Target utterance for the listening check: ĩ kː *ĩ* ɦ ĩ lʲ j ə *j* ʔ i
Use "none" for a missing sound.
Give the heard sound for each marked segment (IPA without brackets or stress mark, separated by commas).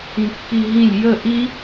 i, none